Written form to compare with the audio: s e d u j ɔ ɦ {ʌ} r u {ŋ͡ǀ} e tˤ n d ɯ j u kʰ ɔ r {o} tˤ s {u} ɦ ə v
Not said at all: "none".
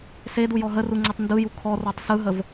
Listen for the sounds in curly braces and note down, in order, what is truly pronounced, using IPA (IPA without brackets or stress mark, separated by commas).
ə, ŋ͡ǀ, ɔ, ɯ